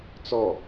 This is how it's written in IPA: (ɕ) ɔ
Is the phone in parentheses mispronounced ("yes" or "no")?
yes